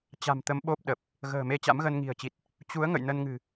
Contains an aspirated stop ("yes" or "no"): no